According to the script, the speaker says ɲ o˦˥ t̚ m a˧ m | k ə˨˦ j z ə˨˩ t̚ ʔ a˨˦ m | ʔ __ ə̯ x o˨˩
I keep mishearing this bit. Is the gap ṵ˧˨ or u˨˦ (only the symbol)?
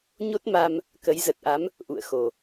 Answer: ṵ˧˨